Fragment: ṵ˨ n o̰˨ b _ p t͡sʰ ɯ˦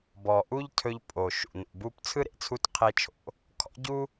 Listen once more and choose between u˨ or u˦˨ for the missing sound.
u˦˨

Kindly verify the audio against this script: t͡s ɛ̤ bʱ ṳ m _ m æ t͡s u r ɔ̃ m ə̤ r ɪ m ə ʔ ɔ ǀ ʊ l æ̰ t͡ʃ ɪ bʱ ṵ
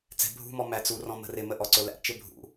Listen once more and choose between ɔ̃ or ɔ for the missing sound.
ɔ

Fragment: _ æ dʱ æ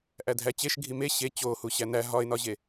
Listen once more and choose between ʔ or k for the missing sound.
ʔ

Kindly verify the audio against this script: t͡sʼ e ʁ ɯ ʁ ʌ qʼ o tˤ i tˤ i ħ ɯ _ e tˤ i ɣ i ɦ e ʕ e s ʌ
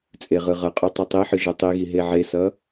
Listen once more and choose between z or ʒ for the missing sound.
ʒ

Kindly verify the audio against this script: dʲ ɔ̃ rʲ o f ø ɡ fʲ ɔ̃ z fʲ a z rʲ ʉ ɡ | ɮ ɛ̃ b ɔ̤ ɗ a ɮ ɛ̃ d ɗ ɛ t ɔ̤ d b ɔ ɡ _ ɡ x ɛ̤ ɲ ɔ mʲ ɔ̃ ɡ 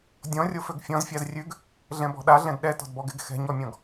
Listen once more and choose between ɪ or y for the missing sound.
ɪ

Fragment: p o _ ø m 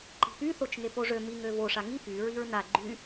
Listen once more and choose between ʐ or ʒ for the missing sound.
ʐ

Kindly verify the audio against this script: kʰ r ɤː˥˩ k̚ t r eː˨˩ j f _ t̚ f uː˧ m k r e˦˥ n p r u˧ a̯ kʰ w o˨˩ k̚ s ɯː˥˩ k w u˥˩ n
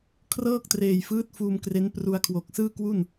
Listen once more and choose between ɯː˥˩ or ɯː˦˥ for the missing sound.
ɯː˦˥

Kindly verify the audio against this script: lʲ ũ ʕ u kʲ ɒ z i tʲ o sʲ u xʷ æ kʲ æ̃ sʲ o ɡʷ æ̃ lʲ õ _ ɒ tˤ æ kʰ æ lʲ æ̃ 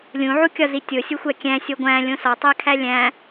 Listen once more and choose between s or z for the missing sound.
s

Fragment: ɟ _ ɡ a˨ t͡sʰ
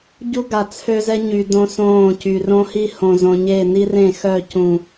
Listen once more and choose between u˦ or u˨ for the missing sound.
u˦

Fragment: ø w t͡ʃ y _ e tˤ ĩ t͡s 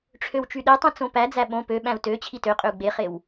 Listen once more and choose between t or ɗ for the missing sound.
ɗ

